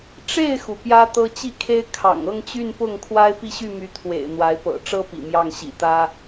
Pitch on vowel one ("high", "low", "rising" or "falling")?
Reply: falling